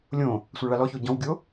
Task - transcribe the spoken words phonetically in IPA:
lʲõ | sʷɑɭalɔço ɟɔ̃wɡʲo

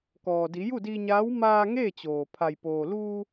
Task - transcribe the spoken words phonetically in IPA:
kɔː˩di˩˧ ju˥˨di˧ɲaː˧˥w maː˧ ŋeː˥˨t͡ɕoː˩ pʰa˩jpoː˩luː˧

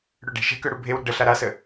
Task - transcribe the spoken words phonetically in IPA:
ɽøɖe̤ʃɛ̤kø ɽubʱewɾə̤ ɖə ɬaɾasə

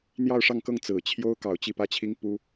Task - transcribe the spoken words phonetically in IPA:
n̪jɑ˥˧ʊ̯ʂɑ˥˧ŋkɤ˥˩ŋ t͡sɹ̩˨˩t͡ɕʰjo˥ʊ̯ kɑ˨˩ʊ̯t͡ɕi˥˩pä˥t͡ɕʰi˥ŋ pu˥

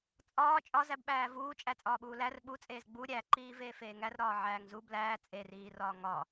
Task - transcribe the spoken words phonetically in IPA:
t͡sʼɒː t͡ʃʼɒzæbɓæː vuːt͡ʃʼæ t͡sʼɒːɓuːlær ɓut͡sʼeːz ɡ͡bu ɾʲæǃiː veːfeːŋærɾɒː ʕæːŋzu blæː t͡sʼeriːrɒː ŋɒ

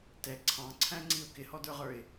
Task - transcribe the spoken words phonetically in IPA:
tɛ ǀʰɑ̃ǀʰæ̃ŋ͡ǀiʊ̯ kɪhɔdə˞ʁə˞ɪ̯

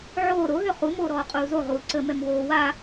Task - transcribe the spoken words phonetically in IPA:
ʕoː ɾoɦø χu moːɾɔːqʼuːzo ʁuːǀəmɛm woː wa

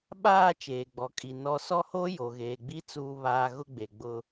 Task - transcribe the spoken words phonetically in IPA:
ɓaː˦˨ t͡ʃeː˨ɡ͡bɔ˨kʼi˨ nɔ˦ sɔ˦ho˦ jo˨ɣeː˨ɡ͡bi˦ t͡suː˦βaː˦ ɣʊ˦ɡ͡be˨ ɡ͡bʊ˦

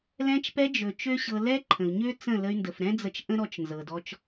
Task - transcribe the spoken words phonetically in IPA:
lɛ̃˧t͡ʃpɛ˧d͡ʒɵ˨ t͡ʃø˦ɕɤ˧ lɛ˦ǃʰə̃˨u̯ɲø˦ t͡sə̃˦˨lə˧y̯ ndə˨fɾɛ̃˦d͡zə˧t͡ʃ ʔə̃˦ɾɔ˧t͡ʃ nzɤ˨dɔ˧t͡ʃ

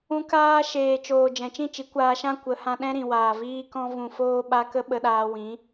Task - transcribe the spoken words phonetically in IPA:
ũ˧ kaː˧ ʃeː˨ t͡ʃoː˨ d͡ʒɛ̃˨t͡ʃĩ˦˨t͡ʃi˨˦ kʷaː˧ʃã˦ kʷə˨˦hã˧ ɗɛ̃˦ɾĩ˨waː˨ viː˦kɔ̃˦vũ˧ foː˦ɓa˦ kə˦ɓə˧ɗaː˧ wĩ˨˦

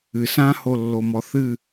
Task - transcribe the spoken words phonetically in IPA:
ɨ sãholːomɔ θɨ

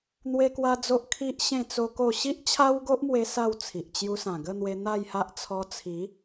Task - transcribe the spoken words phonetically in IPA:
n̪we˦kwa˦d͡zo˦ʔ kʰi˦ʔ ɕẽ˥˧t͡so˦ko˥˧ ɕi˦ʔt͡ɕʰa˦wɡo˦ʔmwe˧ sa˥˧wt͡sʰi˨ʔ t͡ɕju˧sã˨˩ɡə˥˧n̪we˧ n̪a˥˧jha˦ʔ t͡sʰɔ˧t͡sʰi˨˦

